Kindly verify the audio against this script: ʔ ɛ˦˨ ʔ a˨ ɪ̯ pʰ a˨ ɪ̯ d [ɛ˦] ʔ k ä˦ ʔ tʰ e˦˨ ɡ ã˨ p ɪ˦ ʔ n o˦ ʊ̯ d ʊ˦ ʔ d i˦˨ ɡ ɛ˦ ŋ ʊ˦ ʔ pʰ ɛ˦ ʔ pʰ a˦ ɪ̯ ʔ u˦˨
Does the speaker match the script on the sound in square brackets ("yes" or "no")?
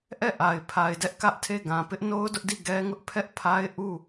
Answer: yes